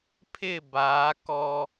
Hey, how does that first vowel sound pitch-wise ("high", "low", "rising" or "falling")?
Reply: falling